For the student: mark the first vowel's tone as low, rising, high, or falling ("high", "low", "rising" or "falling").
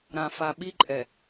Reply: low